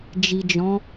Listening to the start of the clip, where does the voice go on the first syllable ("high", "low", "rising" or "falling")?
low